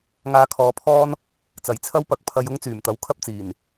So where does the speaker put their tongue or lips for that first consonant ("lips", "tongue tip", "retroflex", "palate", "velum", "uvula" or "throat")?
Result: velum